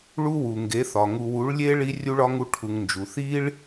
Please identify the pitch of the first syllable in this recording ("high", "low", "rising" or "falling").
high